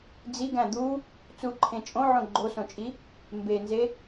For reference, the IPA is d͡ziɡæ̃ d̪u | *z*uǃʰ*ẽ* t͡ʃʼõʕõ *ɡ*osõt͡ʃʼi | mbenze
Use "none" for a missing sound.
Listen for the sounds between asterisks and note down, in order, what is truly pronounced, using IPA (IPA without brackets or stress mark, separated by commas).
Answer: t͡s, ẽ, ɡ͡ǃ